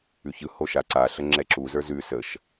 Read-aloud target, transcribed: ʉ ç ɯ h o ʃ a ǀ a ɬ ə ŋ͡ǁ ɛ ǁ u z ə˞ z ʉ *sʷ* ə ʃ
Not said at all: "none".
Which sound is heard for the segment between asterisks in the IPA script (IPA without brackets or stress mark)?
s